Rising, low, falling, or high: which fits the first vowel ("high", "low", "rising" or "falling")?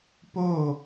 falling